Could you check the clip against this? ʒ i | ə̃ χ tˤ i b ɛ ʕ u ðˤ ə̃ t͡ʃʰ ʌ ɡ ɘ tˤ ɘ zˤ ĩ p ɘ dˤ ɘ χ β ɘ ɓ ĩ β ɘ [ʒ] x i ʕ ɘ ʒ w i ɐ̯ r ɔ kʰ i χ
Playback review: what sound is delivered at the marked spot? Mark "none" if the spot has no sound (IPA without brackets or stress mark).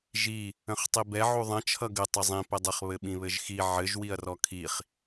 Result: ʒ